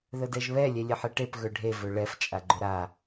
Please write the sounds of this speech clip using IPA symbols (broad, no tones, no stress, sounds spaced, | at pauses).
ð ə d ɛ ʒ β ɛ lʲ ɛ lʲ e ħ e ʈ e p ɣ ɵ ɖʱ e v ɵ ɭ ɛ f t͡ʃʼ a ɡ͡ǃ ɵ ɾ a